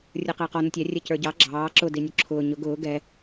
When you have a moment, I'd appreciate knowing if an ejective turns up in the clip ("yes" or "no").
no